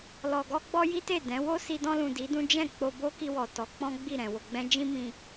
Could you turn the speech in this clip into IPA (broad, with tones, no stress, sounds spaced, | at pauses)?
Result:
l ɔ˨ ɡ ɔ˧ ɡ͡b ɔ˧ j i˦ t e˦˨ d ɛ̃˨˦ w o˦ s i˧ d ɔ̃˧ l ũ˨ d i˨˦ d ũ˦ d͡ʒ ɛ̃˦˨ k͡p o˧ b o˦ k i˧ w ɔ˨ t ɔ˨˦ k͡p ɔ̃˦ ɡ͡b i˦˨ ɾ ɛ̃˨ w o˨ ɡ͡b ɛ̃˧ d͡ʒ ĩ˦ m ĩ˧